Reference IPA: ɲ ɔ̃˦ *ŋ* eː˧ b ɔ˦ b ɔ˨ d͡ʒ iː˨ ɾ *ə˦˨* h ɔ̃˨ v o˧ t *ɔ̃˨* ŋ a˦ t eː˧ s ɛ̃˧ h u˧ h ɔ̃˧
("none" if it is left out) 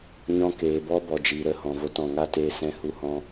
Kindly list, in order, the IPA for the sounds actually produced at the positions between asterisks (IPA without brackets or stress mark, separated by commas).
k, ə˦˨, ɔ̃˨